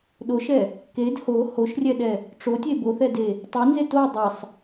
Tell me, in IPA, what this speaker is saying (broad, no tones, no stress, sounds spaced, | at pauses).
ɗ o ʃ ɛ | k e d h o h o ʃ rʲ ɛ ɗ ɛ | ʈ͡ʂ o tʲ e b o θ ɛ d e | tˤ ɛ n z e t o dˤ e sˤ